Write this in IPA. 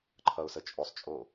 ǃʰ ʌ ʊ̯ s ə t͡ʃʼ o sˤ t͡ʃʼ o

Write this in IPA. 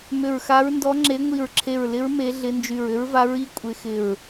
m ʏ˧˩ ɹ x a˧˥ ɹ n d ɔ˧˥ ŋ͡ǁ e˧˥ ŋʷ i˧˩ ɹ ǁʰ e˧˩ ɹ l ɪ˧˥ ɹ m e˧˥ ɮ ɪ˧˥ n d͡ʒ y˧˩ ɹ ʏ˧˥ ɹ v a˧˥ ɹ i˧˥ kʷʼ ɪ˧˥ x ɪ˧˩ ɹ

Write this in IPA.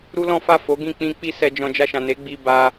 ɾ u˦ l ɔ̃˦ f a˦˨ f o˨˦ ɡ ĩ˦˨ k͡p ĩ˧ k͡p i˦ s ɛ˧ d͡ʒ ɔ̃˧ d͡ʒ a˧ ʃ ã˨ n e˨˦ ɡ͡b i˧ b a˧

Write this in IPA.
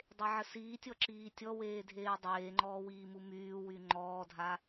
dˤ e ʕ ə s iː tʲ ɔ ǁ iː tʲ ɔ w eː dʱ eː dˤ eː ŋ͡ǃ ɔː w iː m u m yː w y ŋ͡ǃ ɔː dʱ a

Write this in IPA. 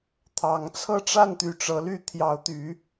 t̪ʰ ɑ˨˦ ŋ t͡sʰ ɤ˥˨ ʈ͡ʂ a˥˨ n t̪ y˨˦ ʈ͡ʂ ɤ˨˦ l y˥˨ t̪ʰ j ɑ˨˦ ʊ̯ t̪ y˨˦

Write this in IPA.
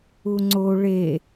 u ŋ͡ǀ o ɭ e

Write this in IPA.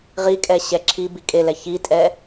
ʁ i kʼ ɛ ɕ ɛ ǁʰ i b i kʼ e l ɛ ç i tʼ ɛ

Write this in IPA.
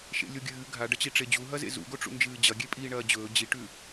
ʃ ḛ lʲ o ɡʲ ɨː ɡʱ a ɖ ɐ t͡ɕ i ʈ͡ʂ e d͡ʑ u ɦ ɐ z ḛ z ṵ ɡ o ʈ͡ʂ ṵ n d͡ʒ ɨː d͡ʑ ɐ ɡʲ e pʼ iː ɳ ɐː d͡ʑ ɵː d͡ʑ i ʈ ʉ

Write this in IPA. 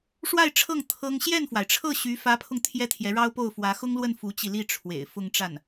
ʂ w a˥˧ ɪ̯ ʈ͡ʂʰ ɤ˥˩ ŋ t̪ʰ ɤ˥ ŋ ɕ j ɛ˥˩ n f w a˩ ɪ̯ ʈ͡ʂʰ ɤ˥˩ ɕ y˧˥ f ä˧˥ pʰ ʊ˧ ŋ t̪ʰ j ɛ˥ t̪ʰ j ɛ˧˥ ɻ ɑ˥ ʊ̯ p o˥˩ ʊ̯ f w ä˧˥ x ʊ˥ ŋ l w ə˥˩ n f u˧˥ t͡ɕ i˧ l i˥˩ ʈ͡ʂʰ w ḛ˨˩ ɪ̯ f ʊ˥˧ ŋ ʈ͡ʂ a˥˩ n

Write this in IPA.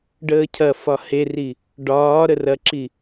ɖ əː cʰ ɐ f ɒ h e r i | ɖ ɒː ɾ ə r ɐ ǁ i

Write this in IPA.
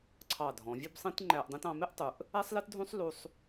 ǀʰ ɑ˧˩ dʱ ɔ̃˩˧ vʲ u˥˧ b sˤ ĩ˥ t ŋ͡ǃ æ˧ ʔ dˤ ĩ˧ t ɑ̃˩˧ m ɪ˥˧ ʔ tˤ u˩˧ ʔ | æ˥ sˤ l ɛ˥ t dʱ ũ˥ sˤ l u˧ sˤ

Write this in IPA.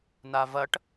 n a v ɐ ʈ

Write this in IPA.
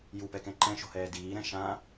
j u p ɛ k ɛ̃ ǃ ɛ̃ ʃ o̤ h ɛː d iː ɾ ɛ̃ ʃ ã

